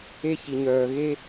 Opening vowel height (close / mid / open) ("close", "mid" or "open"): mid